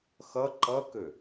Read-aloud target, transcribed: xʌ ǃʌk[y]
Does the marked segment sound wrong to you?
yes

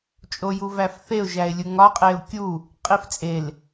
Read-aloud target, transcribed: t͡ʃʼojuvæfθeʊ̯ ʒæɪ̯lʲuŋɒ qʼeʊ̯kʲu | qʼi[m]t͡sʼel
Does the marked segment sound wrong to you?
yes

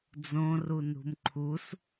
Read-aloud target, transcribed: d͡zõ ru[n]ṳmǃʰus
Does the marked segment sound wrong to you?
no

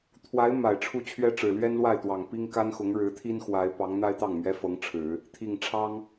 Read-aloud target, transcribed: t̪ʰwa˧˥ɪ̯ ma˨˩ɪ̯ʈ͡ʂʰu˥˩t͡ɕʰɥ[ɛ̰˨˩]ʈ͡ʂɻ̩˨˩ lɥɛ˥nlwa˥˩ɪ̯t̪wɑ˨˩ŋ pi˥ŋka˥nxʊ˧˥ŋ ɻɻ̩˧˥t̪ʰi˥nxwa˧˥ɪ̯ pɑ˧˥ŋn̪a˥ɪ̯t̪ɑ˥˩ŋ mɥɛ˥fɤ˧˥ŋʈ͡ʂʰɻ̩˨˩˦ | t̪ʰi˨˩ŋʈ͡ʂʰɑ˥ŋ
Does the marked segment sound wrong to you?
yes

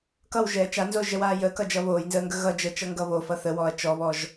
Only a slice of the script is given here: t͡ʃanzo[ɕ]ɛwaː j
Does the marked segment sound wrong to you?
yes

